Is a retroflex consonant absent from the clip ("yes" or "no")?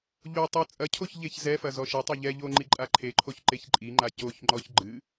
yes